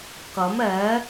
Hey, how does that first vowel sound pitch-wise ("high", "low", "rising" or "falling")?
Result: rising